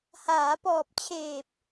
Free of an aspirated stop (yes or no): no